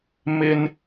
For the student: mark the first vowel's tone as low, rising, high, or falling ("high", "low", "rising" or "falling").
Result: high